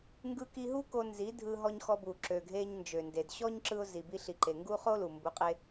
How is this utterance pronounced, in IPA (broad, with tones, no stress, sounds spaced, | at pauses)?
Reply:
ŋ ɡ ɯ˧ k i˧ ɦ u˦ k o˧ n z i˨˦ dʱ ɯ˧ ɦ ɔ˧ ɲ x ɔ˧ b u˨ ǁ ø˨ ɡʱ e˧ ɲ n d͡ʒ ø˨ n d e˨ d ɕ ɔ˦ ɲ ǁ ɯ˧ ʊ̯ z i˨ b i˧ ɬ i˨ ǃ e˨ ŋ ɡ u˦ χ o˦ l u˨ m b u˨˦ qʼ e˧